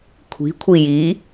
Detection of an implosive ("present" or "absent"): absent